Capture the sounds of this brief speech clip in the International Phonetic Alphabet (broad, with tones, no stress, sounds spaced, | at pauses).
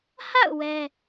h a̰˦˨ ʊ̯ w ɛ˦